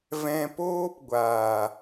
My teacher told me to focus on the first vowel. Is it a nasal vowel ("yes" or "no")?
yes